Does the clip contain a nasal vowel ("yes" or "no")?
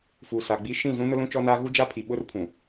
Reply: yes